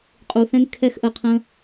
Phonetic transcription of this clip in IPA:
qʼ uː˧ θ ɛ̃˦ ŋ kʰ ɛ˦ x ʔ ə˧ qʰ ə̃ː˦

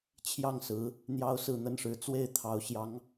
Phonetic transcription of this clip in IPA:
t͡ɕʰ j ɑ˥˩ ŋ s ɹ̩˧˥ | n̪ j ɑ˥ ʊ̯ s ɹ̩˥˩ n̪ ə˥ n ʂ ɻ̩˧˥ t͡s w e˥˩ ɪ̯ t̪ʰ ɑ˧˥ ʊ̯ ɕ j ɑ˧˥ ŋ

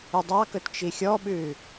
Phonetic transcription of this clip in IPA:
ʉ dˤ ɑ k ɵ t t͡ʃ i xʲ ɔ ɓ ʉ

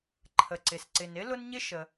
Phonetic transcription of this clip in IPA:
ǃʰ ə˩ ǀ ɪ˩ s ǀ ɪ˩ n ɪ˥ l ʊ˥ n ɲ ɪ˥ ʃ ə˩

